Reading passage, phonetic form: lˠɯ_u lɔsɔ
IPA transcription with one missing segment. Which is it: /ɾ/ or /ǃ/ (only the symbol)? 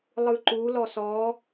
ǃ